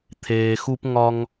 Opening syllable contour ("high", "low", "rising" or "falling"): low